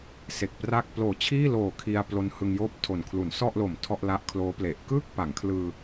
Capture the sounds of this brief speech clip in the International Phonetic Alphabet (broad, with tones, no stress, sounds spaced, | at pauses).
s e˨˩ k̚ p r a˥˩ k̚ p l oː˨˩ t͡ɕʰ iː˥˩ l oː˨˩ kʰ i˧ a̯ p l o˦˥ n h ɯ˧ ŋ j oː˥˩ p̚ tʰ o˨˩ n kʰ l u˩˦ n s ɔ˥˩ ʔ l o˨˩ m tʰ ɔ˥˩ ʔ l a˦˥ ʔ kʰ l oː˦˥ p l e˨˩ ʔ k ɯ˥˩ k̚ p a˩˦ ŋ kʰ l ɯː˧